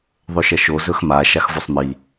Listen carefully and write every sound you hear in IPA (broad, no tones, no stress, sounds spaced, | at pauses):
ðˤ ɵ ʃ ɐ ʃ o z ɵ x m a ʃ a x v o sˤ m i